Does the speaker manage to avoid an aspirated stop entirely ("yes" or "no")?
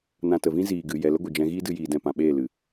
yes